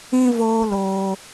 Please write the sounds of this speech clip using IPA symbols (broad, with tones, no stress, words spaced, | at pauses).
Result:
ĩ˦voː˦loː˧